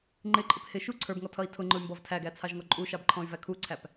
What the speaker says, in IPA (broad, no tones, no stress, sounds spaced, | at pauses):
ŋ͡ǃ ɪ ǃʼ ɪ p h ɪ ʃ u ǀʰ ə˞ b ŋ ɔ tʰ ʌ i̯ tʰ ʊ ŋ͡ǃ ʊ y̯ m b ɔ v tʰ æ ɡ æ t͡sʰ ɑ ʒ ŋ ɔ ǃʼ u ʃ ɑ b ǃʰ ɔ̃ y̯ v æ kʰ u ǀʰ æ p